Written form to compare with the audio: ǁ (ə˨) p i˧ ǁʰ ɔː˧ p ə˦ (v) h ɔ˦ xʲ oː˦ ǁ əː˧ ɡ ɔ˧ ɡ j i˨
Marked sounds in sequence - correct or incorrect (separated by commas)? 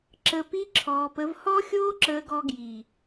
correct, correct